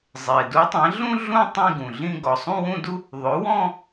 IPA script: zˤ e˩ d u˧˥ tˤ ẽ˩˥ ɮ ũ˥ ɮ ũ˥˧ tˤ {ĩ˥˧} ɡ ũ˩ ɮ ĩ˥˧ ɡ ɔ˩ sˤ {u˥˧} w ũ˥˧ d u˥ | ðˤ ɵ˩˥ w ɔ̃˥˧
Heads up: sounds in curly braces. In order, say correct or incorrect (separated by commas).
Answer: correct, incorrect